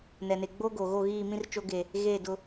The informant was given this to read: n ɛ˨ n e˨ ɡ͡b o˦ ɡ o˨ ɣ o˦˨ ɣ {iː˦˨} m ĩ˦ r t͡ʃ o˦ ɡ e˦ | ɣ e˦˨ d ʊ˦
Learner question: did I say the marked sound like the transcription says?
yes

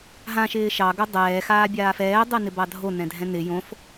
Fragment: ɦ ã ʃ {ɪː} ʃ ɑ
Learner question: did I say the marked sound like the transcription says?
yes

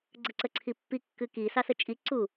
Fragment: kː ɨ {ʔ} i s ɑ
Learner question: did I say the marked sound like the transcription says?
no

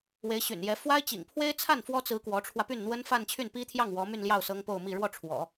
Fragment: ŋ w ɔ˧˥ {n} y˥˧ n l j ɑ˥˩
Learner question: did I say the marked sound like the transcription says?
no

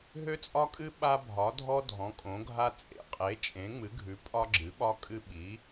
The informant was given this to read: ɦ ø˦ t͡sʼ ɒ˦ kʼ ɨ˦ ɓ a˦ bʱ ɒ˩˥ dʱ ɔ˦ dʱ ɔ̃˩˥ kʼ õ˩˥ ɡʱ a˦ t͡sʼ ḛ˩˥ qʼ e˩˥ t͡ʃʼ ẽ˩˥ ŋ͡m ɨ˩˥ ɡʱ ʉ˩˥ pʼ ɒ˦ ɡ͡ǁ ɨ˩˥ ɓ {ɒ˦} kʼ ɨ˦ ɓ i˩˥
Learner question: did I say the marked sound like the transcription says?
yes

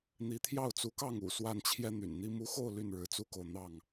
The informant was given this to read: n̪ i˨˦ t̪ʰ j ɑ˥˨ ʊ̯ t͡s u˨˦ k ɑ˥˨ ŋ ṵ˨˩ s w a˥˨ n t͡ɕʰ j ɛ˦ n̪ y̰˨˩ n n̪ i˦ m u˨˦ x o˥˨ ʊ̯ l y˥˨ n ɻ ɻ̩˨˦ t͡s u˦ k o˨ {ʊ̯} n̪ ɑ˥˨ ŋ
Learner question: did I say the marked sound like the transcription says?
yes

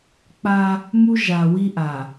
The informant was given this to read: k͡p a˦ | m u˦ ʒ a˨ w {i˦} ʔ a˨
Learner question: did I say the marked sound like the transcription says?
yes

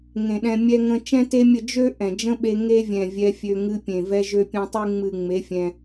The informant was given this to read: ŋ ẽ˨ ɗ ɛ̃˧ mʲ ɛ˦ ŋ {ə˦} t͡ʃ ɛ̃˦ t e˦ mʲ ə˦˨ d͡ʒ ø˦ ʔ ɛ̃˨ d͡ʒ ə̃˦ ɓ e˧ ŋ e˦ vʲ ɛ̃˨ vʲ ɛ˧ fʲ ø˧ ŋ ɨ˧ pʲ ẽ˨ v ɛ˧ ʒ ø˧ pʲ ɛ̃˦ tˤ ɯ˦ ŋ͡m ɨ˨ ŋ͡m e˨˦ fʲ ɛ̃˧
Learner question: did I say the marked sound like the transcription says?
no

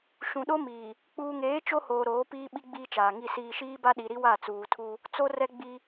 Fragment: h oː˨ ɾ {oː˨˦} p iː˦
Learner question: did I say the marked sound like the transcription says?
yes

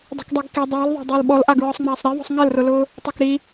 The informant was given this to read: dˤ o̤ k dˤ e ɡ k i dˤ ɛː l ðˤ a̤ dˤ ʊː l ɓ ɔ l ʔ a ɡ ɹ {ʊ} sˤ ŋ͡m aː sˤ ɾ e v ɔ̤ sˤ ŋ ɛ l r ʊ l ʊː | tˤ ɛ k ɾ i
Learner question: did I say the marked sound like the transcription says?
no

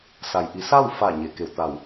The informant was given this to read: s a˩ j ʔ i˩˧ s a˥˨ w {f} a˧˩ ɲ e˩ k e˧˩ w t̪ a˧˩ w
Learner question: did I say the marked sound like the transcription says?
yes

